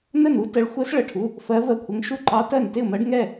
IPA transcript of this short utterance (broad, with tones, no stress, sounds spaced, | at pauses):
n ə˥˩ n u˧˥ t ə˧˥ ɭ xʷ ɜ˧˥ s ɭ ə˩˧˩ ʈʰ u˩˧˩ | f ɜ˧˥ v ɜ˥˩ kʷʰ ə˧˥ ŋ ʃ u˥˩ ǃ ɑ˧˥ t ɜ˥˩ n t ɪ˥˩ ʊ̯ m ɜ˧˥ ɖ ŋ ɛ˥˩